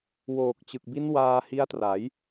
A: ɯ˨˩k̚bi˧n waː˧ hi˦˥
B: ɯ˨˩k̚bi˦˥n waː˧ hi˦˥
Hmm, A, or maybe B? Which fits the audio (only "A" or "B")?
B